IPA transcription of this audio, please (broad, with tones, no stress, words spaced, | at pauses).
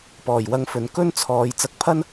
pɔː˨˩jwɐ˧ŋfɵ˨n kɵ˥nt͡sʰɔː˨˧j t͡sɐ˧k̚pʰɐ˥n